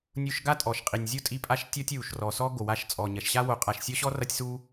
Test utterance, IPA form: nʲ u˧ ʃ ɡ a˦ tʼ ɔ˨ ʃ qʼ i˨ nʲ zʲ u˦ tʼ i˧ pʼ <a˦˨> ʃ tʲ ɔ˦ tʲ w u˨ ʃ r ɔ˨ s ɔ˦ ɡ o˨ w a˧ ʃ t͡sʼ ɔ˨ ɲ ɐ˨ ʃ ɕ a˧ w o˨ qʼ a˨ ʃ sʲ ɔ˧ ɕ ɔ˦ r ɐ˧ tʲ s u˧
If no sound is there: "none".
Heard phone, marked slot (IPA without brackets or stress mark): a˦˨